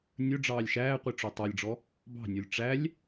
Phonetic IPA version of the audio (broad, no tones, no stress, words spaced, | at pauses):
nʲɵ ɖ͡ʐɑːlʲʃæːqʷi ʈ͡ʂotˤɑlʲɖ͡ʐɔ | bɑ̤nʲolʲ ʈ͡ʂælʲ